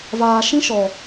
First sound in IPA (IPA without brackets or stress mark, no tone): v